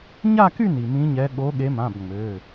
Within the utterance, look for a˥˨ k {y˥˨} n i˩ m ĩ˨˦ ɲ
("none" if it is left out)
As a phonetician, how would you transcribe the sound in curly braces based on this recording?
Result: y˥˨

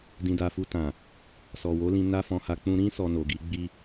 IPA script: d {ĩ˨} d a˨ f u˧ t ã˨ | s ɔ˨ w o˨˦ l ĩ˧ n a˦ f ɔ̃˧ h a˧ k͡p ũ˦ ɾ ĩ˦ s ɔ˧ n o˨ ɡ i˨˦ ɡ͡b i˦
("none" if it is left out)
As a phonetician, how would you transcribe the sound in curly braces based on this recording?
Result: ĩ˨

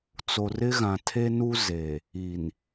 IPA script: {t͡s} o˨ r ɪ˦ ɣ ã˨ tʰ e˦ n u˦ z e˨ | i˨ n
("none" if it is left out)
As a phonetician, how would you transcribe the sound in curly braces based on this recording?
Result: t͡s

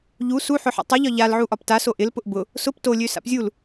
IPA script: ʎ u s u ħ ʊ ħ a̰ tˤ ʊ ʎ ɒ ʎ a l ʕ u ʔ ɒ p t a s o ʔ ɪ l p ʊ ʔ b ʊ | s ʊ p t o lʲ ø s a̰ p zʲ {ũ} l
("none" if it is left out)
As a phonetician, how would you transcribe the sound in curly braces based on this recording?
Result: u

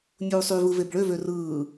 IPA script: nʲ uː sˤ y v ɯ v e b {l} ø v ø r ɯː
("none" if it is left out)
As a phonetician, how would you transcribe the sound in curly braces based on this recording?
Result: ɭ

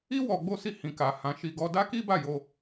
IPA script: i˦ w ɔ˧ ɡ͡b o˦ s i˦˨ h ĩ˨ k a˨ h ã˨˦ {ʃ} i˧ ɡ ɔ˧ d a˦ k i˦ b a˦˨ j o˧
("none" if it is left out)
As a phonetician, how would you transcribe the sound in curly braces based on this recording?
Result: ʃ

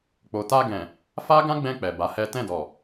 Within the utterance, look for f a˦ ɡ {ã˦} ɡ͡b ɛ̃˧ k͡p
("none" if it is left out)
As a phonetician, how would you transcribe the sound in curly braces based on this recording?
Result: ã˦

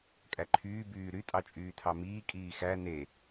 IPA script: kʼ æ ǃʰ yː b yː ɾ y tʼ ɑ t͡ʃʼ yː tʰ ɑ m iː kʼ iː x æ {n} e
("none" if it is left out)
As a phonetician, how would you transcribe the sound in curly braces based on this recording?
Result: n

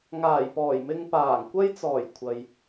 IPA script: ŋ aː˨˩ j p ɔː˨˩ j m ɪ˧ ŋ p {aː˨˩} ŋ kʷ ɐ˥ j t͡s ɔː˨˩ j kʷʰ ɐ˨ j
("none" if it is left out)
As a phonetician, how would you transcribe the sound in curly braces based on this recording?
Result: aː˨˩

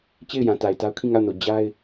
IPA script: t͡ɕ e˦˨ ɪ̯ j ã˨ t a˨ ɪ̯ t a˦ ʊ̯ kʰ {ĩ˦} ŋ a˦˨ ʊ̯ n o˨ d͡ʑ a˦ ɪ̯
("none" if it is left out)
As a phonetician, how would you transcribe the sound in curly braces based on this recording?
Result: ĩ˦˨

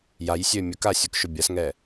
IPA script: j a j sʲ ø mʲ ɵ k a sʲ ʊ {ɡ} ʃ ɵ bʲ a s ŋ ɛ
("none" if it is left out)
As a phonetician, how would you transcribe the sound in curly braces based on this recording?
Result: k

